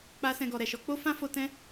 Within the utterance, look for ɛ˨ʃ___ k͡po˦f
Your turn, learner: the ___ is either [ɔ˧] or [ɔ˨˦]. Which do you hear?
ɔ˨˦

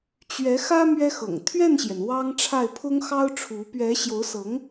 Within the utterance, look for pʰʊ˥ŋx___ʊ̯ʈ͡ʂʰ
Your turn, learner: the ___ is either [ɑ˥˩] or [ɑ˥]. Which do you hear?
ɑ˥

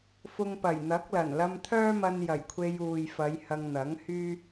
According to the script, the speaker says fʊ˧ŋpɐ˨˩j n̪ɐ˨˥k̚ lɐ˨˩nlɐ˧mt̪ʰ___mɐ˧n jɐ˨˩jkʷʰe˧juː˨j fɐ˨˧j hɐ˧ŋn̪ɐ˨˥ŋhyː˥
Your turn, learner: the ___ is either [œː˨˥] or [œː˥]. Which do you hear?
œː˥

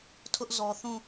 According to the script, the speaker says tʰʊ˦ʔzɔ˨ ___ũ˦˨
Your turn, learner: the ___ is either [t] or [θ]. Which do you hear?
θ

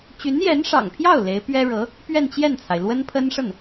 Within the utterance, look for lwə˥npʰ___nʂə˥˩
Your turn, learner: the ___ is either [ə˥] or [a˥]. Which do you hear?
ə˥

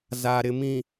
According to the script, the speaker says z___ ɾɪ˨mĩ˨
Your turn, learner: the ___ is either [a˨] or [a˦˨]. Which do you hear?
a˨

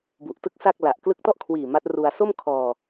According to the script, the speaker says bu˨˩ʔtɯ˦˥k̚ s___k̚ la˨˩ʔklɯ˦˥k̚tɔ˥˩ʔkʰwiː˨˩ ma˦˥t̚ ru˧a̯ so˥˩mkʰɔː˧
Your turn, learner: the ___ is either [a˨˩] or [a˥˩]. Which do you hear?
a˥˩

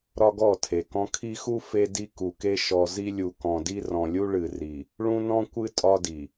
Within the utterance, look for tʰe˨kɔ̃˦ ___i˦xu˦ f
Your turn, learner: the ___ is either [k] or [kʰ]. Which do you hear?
kʰ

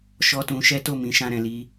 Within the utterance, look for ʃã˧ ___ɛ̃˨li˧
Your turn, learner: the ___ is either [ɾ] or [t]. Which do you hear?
ɾ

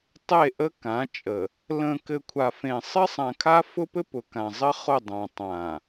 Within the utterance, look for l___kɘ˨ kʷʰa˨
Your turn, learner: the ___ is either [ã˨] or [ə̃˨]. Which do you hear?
ə̃˨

